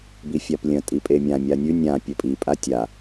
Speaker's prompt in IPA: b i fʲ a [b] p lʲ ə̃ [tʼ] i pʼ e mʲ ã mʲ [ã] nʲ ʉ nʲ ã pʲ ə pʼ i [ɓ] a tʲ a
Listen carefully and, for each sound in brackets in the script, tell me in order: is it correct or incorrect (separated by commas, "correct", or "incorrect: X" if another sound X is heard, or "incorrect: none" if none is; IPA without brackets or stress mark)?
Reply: incorrect: none, correct, incorrect: a, incorrect: pʼ